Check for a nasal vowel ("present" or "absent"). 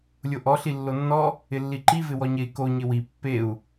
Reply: absent